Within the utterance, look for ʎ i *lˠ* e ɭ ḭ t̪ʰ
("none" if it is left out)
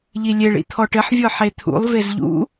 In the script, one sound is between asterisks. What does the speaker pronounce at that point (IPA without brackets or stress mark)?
lʲ